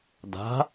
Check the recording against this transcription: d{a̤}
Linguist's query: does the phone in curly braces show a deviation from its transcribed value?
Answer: no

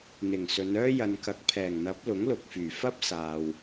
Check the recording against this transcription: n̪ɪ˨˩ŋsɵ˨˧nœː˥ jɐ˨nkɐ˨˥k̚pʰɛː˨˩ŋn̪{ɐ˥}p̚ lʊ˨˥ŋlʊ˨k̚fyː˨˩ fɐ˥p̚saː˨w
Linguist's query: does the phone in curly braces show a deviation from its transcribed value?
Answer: yes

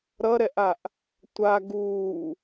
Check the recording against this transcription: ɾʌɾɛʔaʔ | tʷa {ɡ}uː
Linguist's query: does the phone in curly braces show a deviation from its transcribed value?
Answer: no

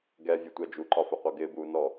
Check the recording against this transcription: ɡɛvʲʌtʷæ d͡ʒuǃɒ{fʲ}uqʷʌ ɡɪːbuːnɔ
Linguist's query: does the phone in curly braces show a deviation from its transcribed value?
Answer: yes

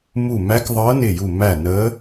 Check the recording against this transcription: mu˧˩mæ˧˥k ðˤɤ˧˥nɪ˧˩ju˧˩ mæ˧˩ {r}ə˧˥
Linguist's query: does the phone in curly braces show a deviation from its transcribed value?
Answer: yes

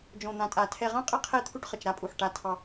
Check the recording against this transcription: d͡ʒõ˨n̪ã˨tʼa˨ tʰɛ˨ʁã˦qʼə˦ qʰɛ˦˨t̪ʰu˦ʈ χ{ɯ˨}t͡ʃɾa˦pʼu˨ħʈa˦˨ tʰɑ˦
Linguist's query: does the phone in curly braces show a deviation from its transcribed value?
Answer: yes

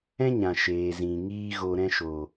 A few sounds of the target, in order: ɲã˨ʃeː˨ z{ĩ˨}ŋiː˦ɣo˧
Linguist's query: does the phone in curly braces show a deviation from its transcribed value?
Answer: no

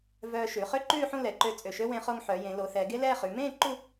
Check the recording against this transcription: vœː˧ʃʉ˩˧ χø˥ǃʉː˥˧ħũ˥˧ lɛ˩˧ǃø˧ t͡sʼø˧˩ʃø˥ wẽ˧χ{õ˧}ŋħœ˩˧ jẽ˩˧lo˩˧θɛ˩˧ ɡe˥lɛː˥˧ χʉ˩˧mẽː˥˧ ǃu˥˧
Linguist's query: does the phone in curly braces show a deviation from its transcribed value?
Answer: yes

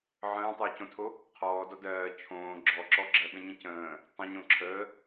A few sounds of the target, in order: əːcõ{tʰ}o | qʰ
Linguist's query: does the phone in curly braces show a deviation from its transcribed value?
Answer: no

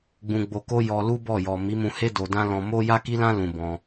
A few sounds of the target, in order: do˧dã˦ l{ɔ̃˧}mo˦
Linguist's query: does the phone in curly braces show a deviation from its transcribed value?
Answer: no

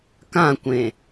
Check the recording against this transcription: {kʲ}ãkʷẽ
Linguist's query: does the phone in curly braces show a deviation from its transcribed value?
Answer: yes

